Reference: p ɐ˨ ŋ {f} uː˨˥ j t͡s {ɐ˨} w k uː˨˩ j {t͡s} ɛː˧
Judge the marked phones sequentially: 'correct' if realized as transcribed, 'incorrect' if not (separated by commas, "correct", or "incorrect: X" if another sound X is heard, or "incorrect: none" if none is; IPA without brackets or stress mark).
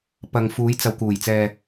correct, correct, correct